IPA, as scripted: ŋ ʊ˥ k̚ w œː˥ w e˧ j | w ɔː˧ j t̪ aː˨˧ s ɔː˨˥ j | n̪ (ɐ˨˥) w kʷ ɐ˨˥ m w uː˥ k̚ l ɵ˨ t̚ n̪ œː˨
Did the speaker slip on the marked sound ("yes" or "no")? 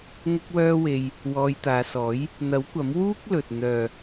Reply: no